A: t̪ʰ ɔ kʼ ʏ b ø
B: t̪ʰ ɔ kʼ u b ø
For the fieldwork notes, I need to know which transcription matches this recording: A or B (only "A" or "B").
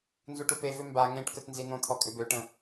A